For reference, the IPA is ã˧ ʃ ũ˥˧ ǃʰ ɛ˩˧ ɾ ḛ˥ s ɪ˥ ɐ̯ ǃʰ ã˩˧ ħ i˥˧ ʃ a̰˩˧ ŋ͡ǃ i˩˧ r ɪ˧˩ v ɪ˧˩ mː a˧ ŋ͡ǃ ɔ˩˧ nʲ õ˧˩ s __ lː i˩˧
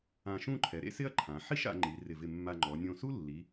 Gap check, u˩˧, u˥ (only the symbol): u˥